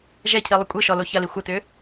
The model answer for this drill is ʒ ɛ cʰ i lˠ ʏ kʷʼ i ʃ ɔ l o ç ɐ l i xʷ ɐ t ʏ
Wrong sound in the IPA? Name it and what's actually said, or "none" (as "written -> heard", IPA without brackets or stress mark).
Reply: none